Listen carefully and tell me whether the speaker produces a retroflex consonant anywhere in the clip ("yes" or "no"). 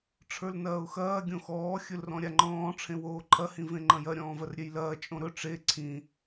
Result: yes